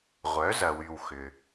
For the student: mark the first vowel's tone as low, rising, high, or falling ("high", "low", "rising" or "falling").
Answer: rising